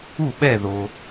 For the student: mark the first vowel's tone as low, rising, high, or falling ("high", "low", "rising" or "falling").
falling